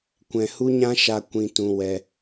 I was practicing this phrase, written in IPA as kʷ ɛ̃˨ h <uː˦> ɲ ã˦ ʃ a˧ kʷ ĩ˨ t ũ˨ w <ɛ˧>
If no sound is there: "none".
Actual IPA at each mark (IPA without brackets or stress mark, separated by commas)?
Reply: u˦, ɛ˧